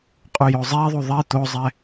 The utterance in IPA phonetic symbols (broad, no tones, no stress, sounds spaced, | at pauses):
qʼ u j o zˤ e ðˤ u ðˤ i t̪ o zˤ ɛ